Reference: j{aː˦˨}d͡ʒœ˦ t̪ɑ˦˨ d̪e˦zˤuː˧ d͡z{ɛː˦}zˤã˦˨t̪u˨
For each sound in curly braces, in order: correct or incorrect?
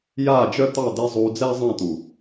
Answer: correct, correct

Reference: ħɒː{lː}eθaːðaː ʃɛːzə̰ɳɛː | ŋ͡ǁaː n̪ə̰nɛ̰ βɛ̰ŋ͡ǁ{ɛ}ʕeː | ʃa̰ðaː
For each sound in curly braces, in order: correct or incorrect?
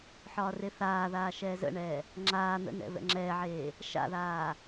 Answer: incorrect, incorrect

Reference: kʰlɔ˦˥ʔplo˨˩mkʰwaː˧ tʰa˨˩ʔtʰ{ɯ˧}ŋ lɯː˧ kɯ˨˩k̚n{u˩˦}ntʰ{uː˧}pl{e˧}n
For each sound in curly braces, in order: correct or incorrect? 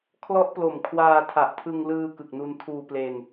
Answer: correct, incorrect, correct, correct

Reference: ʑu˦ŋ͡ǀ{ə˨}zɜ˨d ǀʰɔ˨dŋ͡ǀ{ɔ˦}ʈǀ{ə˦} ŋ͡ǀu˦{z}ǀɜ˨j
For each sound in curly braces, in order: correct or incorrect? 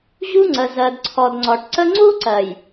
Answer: correct, incorrect, correct, incorrect

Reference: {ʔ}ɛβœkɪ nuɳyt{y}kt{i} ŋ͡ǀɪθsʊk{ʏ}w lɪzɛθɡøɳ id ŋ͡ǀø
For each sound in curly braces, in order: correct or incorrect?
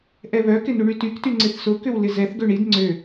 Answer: correct, correct, incorrect, correct

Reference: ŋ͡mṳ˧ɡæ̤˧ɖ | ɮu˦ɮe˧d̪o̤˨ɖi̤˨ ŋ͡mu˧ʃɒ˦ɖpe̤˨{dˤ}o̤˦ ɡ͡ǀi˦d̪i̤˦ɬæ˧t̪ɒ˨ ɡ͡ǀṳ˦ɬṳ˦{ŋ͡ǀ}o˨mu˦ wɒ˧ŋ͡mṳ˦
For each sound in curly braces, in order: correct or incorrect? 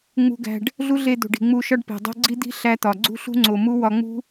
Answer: correct, correct

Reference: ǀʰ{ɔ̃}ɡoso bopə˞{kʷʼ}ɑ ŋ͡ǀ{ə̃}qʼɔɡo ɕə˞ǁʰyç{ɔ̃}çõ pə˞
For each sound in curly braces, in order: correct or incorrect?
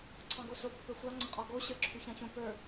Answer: incorrect, incorrect, correct, incorrect

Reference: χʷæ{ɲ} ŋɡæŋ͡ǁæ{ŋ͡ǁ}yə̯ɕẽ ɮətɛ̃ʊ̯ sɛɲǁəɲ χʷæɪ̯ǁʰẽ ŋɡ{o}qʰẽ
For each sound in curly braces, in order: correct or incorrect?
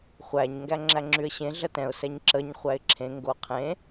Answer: correct, correct, correct

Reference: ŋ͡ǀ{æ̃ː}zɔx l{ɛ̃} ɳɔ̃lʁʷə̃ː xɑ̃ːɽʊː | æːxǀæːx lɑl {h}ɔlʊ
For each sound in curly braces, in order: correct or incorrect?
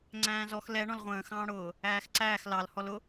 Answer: correct, incorrect, correct

